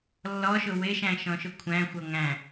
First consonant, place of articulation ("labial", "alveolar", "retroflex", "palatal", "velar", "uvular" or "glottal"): alveolar